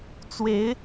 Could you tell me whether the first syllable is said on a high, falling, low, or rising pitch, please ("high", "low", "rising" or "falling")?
rising